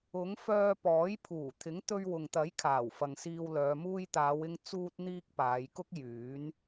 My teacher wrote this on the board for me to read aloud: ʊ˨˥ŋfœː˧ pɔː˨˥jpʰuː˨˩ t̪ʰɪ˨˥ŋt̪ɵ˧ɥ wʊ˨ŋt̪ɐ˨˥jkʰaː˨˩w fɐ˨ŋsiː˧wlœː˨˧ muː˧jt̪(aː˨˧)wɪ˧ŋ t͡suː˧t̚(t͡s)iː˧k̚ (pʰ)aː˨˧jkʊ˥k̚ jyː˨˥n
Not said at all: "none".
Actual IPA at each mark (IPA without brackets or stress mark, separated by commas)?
aː˨˧, n̪, p